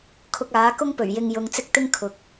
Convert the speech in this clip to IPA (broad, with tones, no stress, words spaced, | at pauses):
kʰʊ˧k̚aː˨˥kʊ˥ŋ pɵ˨˩ɥjɪ˧ŋjʊ˨˧ŋ t͡sɪ˥k̚t̪ɪ˥ŋ kʰʊ˨˥k̚